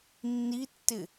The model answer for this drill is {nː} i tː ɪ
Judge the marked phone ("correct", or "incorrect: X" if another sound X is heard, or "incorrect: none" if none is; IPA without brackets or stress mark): correct